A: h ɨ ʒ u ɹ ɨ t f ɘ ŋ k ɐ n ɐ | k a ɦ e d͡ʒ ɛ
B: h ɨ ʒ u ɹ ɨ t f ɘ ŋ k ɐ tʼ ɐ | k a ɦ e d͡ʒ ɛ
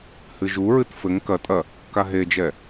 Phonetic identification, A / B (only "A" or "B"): B